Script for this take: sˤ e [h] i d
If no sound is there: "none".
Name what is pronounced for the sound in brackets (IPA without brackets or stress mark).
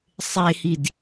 h